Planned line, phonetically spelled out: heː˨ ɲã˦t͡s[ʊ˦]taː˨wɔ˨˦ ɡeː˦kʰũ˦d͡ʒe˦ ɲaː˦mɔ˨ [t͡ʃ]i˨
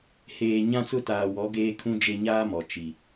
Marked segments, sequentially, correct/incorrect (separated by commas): correct, correct